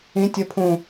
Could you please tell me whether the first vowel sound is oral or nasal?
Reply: nasal